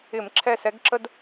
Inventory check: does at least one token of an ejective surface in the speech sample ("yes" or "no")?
no